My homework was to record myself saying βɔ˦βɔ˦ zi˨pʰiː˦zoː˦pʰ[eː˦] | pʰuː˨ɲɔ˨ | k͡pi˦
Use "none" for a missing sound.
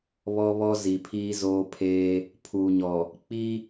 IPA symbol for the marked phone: eː˦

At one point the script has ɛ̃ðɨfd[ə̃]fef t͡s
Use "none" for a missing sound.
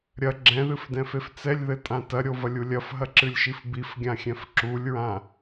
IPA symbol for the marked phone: ɛ̃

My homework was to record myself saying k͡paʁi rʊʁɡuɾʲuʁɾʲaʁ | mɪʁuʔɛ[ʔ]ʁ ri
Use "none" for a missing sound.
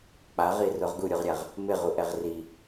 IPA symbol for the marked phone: none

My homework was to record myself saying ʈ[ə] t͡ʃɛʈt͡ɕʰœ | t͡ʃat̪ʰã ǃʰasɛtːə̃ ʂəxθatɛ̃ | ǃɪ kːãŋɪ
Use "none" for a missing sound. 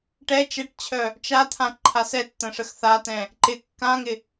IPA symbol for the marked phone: ɛ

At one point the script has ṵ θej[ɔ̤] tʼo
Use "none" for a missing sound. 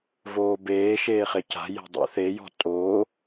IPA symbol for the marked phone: ɔ̤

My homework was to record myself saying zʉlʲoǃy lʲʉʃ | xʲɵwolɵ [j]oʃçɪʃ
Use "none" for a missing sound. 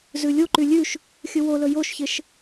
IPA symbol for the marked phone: j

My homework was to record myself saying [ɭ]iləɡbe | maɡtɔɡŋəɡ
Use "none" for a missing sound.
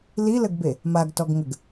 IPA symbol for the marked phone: l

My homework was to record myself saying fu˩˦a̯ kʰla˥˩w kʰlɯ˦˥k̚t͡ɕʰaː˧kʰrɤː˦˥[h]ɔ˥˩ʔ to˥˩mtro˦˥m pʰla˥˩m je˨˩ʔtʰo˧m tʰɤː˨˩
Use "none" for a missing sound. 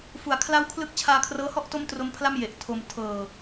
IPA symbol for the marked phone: h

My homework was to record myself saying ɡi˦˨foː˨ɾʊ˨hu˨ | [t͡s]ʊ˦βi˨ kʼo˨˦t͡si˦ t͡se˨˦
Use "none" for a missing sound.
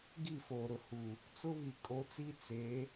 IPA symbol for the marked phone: t͡s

